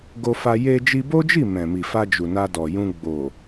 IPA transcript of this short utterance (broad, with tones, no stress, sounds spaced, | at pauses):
ɡ o˧ f a˧ j e˧ d͡ʒ i˧ b o˦ d͡ʒ i˦˨ m ɛ̃˨ m i˨ f a˧ d͡ʒ u˨ n a˧ d ɔ˨ j ũ˧ ɡ͡b o˨